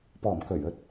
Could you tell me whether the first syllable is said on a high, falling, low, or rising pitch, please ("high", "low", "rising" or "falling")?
low